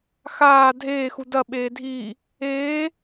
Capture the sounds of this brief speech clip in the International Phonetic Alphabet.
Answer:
x aː dʱ eː x u d ɐ ɓ eː dʱ iː | eː

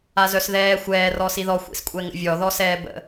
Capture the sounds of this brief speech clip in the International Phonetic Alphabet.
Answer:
a z œ s ð ɛː xʷ ɛː r ɔ s i ð ɔ xʷ ḭ s kʷʼ ɛ ŋ ə̰ vʲ ɔ ð ɔ s ɛː b ə̰

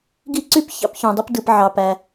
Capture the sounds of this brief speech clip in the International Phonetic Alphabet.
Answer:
ɡ i˥ ǀ y˦ p ç ɑ̰˥ p ç õ˨ dˤ ɯ˥ p d ɯ˨ p ʕ ɑ˩ p æ˩

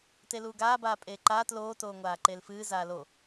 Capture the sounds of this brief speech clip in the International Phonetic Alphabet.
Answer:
t e l uː ɡ aː b aː pʼ eː ǃ aː t l oː t oː ŋʷ aː ǃ e l f ɨː z aː l o

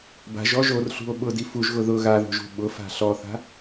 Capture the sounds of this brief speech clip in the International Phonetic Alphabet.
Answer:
b a̤ ʒ ɔ ʒ o r ɬ ṳ o̯ ɓ ʊ d i f u ʒ ɣ ʊ ð ʊ ɣ a ð o̤ ʒ ṳ ɓ ʊ f a̤ ɬ ɔ θ a̤

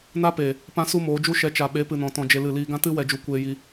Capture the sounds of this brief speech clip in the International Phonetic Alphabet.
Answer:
n a˦ p eː˨ | p ã˦ s u˦ m oː˨˦ d͡ʒ u˦ ʃ ɛ˨˦ t͡ʃ a˨ ɓ e˨˦ p ɨ˨ n ɔ̃˨ t ɔ̃˧ d͡ʒ e˧ l ɨ˦˨ l iː˧ ɡ ã˦ t ɨ˦ w ɛ˧ d͡ʒ u˧ kʷ eː˧ j i˧

